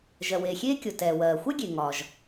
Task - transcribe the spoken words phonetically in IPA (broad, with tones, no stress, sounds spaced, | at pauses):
ʒ ɜ˩ w eː˩ xʲ eː˥ kʲ o˩ t ɛː˩ w ɜː˩ xʷ ɛ˥ ɡʲ e˩ ŋ ɒ˩ ʒ